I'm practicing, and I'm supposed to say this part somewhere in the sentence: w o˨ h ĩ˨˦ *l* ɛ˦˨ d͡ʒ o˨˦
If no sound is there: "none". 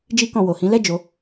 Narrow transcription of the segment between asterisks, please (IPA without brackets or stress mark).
l